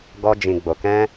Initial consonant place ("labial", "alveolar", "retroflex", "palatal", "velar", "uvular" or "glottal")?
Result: velar